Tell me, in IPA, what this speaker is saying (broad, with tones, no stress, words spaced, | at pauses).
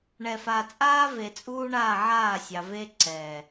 ɳɛ˨fa˨t͡sʼaː˦ ve˨t͡sʼuː˦ɳaː˦˨ ʕaː˦˨sʲɑ˨ ve˦ ǀɛ˨